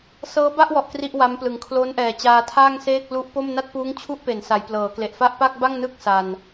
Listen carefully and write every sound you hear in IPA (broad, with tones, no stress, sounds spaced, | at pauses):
s ɤː˦˥ b a˥˩ ʔ w ɔ˨˩ ʔ k r i˥˩ ʔ w a˦˥ m p l ɯ˨˩ ŋ kʰ l o˦˥ n ʔ ɛː˨˩ t͡ɕ aː˧ tʰ aː˥˩ ŋ s eː˥˩ k̚ l u˦˥ ʔ p o˥˩ m n a˥˩ t̚ p uː˦˥ ŋ t͡ɕʰ u˦˥ ʔ p e˩˦ n s a˩˦ j p l ɤː˩˦ k l e˨˩ ʔ f a˥˩ ʔ p a˥˩ k̚ b a˥˩ ŋ n ɯ˥˩ k̚ s a˧ n